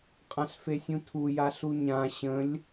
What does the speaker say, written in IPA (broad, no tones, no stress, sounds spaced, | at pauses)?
qʼ ã ɬ f e sʲ ũ tʰ u j a ɬ u ɲ ã ɕ ə̃ lʲ